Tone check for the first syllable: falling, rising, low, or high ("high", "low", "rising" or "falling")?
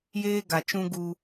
high